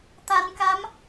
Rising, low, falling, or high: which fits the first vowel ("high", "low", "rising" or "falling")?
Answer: low